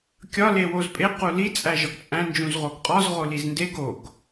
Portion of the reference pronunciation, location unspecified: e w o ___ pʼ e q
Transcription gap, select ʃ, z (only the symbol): z